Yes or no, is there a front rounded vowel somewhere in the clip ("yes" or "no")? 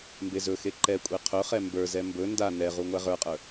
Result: no